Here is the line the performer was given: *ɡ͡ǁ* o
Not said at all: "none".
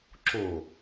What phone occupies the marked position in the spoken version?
ǁ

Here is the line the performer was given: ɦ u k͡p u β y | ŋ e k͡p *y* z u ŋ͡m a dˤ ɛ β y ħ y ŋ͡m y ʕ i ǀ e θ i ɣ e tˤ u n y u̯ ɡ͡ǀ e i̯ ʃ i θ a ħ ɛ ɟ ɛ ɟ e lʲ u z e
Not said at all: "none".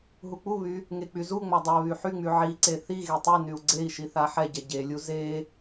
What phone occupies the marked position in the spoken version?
y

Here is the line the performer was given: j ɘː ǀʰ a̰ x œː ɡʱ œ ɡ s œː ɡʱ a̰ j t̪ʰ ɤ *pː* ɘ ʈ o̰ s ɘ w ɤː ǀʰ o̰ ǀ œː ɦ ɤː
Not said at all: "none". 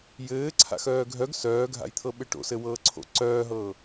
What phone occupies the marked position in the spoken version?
ɓ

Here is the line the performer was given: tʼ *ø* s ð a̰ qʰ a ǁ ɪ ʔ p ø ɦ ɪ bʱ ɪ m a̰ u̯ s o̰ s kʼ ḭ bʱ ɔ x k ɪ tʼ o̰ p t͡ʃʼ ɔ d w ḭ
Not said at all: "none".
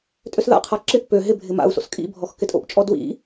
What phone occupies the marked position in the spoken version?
ø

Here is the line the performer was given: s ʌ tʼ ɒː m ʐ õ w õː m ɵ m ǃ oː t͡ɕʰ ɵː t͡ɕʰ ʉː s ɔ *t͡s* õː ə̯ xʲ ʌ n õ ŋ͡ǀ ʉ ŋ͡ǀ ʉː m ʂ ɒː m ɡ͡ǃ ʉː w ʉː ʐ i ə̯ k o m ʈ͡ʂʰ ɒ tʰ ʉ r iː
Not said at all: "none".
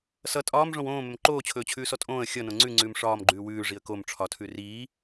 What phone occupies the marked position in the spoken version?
tʼ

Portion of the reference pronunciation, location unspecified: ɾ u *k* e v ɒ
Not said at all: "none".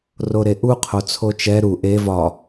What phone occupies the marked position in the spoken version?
ʔ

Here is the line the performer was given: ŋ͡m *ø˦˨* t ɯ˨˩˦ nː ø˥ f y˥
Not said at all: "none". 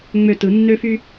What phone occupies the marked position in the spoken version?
ø˦˨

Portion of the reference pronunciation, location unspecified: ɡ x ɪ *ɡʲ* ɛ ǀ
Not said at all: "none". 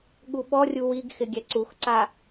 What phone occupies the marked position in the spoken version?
ɡʲ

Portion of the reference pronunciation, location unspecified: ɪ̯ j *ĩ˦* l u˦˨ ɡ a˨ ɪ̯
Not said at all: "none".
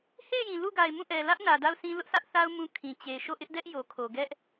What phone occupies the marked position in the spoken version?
ĩ˨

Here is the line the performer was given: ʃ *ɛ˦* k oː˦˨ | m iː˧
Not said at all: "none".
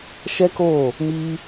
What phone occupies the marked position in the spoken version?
ɛ˦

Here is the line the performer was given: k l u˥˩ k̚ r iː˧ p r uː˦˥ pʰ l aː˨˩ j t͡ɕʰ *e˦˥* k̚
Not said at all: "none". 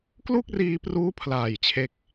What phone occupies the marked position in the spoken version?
e˦˥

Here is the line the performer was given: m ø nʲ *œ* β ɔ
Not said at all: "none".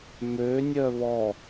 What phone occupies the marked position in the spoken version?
œ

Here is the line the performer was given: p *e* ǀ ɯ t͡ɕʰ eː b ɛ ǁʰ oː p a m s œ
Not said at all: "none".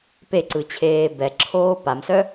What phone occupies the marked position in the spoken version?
e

